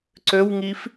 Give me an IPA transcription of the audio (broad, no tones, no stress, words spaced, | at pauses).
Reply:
ǀøwŋif